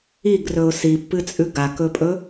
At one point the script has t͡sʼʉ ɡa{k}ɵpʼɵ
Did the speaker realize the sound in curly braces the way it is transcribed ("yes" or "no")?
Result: yes